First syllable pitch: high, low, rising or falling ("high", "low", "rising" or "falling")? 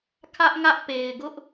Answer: high